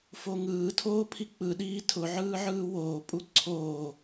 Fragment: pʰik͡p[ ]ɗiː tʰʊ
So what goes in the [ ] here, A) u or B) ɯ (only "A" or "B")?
B